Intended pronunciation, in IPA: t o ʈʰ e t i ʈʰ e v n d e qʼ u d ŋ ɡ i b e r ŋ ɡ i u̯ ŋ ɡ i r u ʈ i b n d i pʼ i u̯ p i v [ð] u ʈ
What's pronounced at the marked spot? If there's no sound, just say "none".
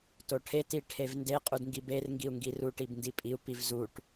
z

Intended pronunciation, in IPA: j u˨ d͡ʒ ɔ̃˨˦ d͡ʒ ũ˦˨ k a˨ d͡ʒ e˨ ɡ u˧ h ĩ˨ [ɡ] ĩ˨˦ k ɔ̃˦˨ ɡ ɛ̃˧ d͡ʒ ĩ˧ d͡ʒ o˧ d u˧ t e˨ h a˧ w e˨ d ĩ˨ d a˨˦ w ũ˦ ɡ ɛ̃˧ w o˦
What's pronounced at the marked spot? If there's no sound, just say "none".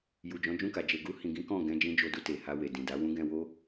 ɡ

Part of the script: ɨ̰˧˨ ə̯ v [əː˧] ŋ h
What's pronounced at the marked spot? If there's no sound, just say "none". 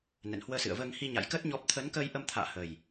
əː˧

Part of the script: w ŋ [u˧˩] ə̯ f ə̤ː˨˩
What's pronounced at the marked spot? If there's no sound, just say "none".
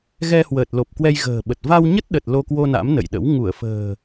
u˧˩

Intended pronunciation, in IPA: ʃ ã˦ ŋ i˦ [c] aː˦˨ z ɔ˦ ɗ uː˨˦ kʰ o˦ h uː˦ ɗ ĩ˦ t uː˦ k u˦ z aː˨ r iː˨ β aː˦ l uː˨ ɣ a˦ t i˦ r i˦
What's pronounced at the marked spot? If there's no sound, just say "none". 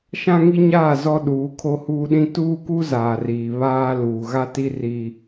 ɲ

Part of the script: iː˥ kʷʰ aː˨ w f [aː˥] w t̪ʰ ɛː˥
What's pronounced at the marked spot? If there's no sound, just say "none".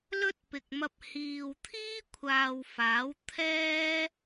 aː˨˥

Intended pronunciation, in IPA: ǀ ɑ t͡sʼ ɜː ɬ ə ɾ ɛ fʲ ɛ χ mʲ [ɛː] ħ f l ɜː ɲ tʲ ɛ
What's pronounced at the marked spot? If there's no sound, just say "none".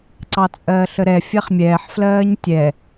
ɛː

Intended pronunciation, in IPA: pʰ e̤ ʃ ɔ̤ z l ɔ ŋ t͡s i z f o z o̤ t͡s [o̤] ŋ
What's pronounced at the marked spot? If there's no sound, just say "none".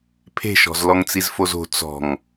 ɔ̤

